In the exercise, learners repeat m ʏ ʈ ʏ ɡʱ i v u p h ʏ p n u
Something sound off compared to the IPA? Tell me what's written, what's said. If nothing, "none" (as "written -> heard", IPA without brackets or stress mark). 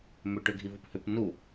none